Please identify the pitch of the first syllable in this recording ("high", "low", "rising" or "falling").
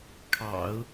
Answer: low